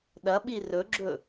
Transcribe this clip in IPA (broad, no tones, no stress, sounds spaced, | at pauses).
ɗ ɐ ɓ i r ɵ ɡ͡ǁ ɵ